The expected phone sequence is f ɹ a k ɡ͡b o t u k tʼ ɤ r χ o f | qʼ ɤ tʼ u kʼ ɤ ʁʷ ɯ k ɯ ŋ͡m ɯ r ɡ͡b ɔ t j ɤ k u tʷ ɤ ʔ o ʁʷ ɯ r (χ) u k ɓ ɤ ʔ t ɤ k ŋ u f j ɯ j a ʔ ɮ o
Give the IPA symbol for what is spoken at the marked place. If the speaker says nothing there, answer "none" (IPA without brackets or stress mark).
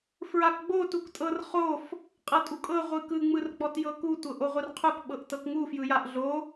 qʰ